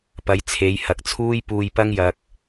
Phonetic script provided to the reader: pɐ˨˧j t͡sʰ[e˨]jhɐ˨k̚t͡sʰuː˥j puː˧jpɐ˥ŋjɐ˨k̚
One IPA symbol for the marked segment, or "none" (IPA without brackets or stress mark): e˨˧